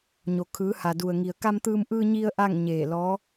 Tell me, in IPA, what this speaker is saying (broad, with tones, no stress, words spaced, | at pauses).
ɲo˩kʰɯː˩˧ha˩du˩ə̯ ŋi˩ə̯ka˧mt̪ɯː˧m ʔɯː˧ɲi˧ə̯ ʔa˥˨ŋɲeː˧˩ lɔː˧˥